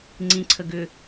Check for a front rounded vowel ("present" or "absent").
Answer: present